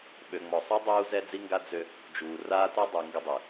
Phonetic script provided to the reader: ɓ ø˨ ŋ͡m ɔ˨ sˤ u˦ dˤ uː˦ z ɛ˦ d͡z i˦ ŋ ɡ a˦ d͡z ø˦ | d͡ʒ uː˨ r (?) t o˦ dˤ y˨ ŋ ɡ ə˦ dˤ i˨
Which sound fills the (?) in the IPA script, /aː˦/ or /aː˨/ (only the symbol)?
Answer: aː˦